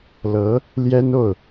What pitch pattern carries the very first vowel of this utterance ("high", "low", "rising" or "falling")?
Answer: rising